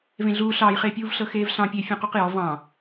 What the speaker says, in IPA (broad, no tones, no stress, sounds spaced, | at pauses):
v ẽ ɮ uː ɬ ɑː j χ eː pʲ uː v ɬ ɤ x eː v ɬ ɑ̃ pʲ e fʲ ũ q u q j ɔ v ɑ̃